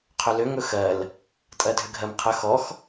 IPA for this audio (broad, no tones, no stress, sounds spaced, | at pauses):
qʰ ʏ l ʏ ŋ ɵ x ɜ l | tʼ ɜ dʱ ʏ ɡʱ ɜ m qʰ ə x ɔ x